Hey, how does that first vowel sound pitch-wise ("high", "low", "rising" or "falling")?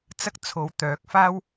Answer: high